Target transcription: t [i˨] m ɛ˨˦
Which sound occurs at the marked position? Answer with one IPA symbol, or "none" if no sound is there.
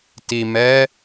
i˨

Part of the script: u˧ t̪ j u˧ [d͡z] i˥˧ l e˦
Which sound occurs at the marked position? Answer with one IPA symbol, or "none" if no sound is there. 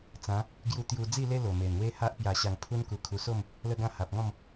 d͡z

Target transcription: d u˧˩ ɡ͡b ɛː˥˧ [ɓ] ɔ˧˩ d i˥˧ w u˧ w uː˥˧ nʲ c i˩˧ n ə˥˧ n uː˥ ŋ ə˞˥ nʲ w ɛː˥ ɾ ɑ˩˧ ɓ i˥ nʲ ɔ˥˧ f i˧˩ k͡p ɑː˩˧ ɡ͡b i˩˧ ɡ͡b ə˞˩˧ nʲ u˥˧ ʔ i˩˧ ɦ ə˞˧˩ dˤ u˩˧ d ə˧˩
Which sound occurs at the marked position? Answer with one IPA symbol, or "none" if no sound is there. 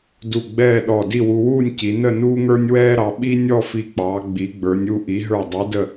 ɗ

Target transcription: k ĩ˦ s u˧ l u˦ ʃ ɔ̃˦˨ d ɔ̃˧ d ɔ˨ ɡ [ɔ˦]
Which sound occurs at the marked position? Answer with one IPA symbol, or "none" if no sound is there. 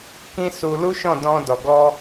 ɔ˧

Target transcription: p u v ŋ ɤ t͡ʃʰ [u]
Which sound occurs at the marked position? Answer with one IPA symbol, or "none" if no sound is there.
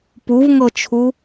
u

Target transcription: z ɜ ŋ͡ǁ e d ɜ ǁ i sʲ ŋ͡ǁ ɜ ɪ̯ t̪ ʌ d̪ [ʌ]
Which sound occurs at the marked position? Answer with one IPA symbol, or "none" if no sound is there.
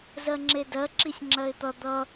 ʌ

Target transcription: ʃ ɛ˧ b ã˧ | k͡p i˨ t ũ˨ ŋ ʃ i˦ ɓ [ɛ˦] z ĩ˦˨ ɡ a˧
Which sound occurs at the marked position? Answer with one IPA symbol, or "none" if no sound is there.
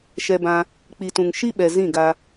ɛ˨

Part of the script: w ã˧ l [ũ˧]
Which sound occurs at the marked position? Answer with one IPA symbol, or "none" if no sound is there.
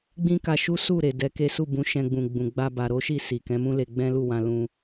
ũ˧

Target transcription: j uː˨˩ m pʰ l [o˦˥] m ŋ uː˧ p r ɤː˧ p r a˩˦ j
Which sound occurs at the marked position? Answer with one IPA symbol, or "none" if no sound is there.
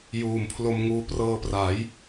o˧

